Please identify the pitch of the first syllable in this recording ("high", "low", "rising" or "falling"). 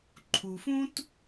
low